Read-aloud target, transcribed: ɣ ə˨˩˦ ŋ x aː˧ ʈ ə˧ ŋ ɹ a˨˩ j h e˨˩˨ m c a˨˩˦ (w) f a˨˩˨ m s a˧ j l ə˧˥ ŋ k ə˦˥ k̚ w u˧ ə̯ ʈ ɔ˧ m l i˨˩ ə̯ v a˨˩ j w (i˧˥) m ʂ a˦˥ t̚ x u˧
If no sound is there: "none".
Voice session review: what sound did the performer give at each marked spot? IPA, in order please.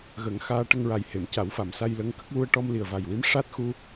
w, i˧˥

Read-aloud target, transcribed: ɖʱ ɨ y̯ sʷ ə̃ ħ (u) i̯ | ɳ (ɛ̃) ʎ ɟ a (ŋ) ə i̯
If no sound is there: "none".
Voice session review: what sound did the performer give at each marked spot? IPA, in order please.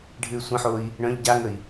o, œ̃, ŋ

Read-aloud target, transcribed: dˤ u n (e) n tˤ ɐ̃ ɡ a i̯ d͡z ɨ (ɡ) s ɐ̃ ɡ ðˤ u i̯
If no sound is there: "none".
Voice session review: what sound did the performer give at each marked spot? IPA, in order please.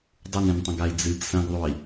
ẽ, ɡ

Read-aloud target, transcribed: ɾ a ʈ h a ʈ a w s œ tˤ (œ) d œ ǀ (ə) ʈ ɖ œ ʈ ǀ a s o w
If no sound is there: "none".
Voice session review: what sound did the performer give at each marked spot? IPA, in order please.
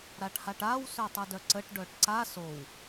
œ, ə

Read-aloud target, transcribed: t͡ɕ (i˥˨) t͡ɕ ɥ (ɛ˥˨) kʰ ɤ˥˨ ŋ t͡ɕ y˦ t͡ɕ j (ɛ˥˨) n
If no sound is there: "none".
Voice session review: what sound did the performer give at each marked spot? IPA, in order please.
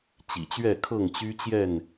ḭ˨˩, ɛ˥˨, ɛ˥˨

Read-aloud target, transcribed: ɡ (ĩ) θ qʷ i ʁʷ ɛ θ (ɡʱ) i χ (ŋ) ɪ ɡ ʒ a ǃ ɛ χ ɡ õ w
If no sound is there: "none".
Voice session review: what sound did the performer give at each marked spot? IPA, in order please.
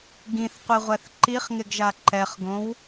ĩ, ǃ, ŋ

